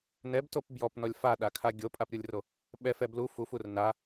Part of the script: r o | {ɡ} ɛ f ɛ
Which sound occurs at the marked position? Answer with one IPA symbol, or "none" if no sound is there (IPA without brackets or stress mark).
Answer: ɓ